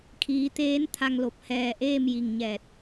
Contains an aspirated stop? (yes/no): yes